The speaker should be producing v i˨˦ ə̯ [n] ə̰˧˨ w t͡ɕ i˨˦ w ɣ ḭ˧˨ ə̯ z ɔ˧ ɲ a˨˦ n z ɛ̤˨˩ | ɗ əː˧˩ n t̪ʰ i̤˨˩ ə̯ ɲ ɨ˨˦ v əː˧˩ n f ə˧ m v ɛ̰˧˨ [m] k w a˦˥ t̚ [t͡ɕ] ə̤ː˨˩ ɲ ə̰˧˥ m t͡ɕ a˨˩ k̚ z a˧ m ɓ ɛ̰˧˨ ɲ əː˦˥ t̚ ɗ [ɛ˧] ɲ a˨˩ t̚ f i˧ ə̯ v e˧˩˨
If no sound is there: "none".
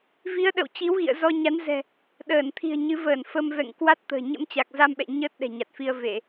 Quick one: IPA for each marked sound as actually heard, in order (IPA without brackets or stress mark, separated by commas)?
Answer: ɗ, ŋ, t̪, ɛ̤˨˩